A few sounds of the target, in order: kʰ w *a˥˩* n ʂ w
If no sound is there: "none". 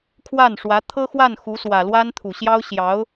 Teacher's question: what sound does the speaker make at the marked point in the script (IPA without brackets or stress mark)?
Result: a˥˩